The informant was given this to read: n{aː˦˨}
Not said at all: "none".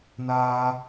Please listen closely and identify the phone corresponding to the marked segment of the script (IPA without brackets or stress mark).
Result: aː˦